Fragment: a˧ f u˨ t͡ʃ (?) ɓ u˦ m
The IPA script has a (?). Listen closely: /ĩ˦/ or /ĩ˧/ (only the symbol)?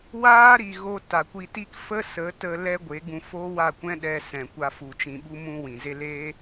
ĩ˧